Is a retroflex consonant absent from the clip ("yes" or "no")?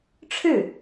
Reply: no